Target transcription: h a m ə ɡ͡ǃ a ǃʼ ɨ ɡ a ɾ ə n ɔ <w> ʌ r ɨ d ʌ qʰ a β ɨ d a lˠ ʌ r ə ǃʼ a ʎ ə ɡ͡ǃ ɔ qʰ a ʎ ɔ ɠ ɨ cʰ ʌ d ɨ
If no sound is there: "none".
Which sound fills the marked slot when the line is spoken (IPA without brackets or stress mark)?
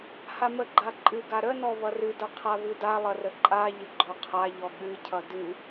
β